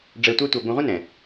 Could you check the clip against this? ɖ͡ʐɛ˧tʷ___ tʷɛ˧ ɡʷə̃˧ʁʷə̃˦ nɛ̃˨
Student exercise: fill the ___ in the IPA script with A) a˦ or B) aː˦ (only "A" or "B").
A